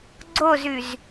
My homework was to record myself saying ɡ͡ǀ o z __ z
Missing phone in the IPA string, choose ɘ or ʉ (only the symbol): ʉ